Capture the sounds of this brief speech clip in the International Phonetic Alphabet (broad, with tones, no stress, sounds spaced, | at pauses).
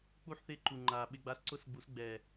k͡p u˦ ħ θ ɪ˦˨ ǃ u˨ ŋ͡ǃ a˨ ɓ ɪ˦ ɡ͡b a˦ s ǀ ʊ˦ s ɡ͡b u˨˦ s ɡ͡b ɛ˨